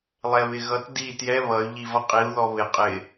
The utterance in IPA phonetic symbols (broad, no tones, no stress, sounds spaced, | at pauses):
lˠ ɛ β ɪ ɣ ʌ t d i t j ɛ β ʌ y̯ ʎ i v ʌ qʼ i u̯ ð ɔ β ɪ qʼ ɪ